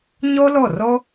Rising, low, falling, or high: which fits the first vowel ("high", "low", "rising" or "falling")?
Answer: high